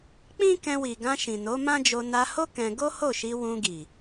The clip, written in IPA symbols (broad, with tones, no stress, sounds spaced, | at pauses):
k͡p ĩ˦ k ɛ̃˧ w i˨ ɡ ã˧ ʃ ĩ˨ n o˨˦ m ã˦ d͡ʒ o˧ n a˧ h o˦ k ɛ̃˧ ɡ o˦ h o˦˨ ʃ i˧ w ũ˧ ɡ i˨